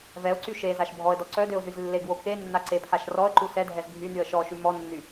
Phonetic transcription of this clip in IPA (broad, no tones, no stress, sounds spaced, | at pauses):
v ɛ ʊ̯ ǀ y ʃ e z a ʃ bʱ ɔ ə̯ d ɔ ǀ œ d ø ʊ̯ z y z lː e ɡ w o k e nː a ǀ e pʰ a ʃ r ɔ ə̯ ǃ u s ɛ dʱ ɛ z bʱ y n y ə̯ ʃ ɔ ʃ y m ɔ nː y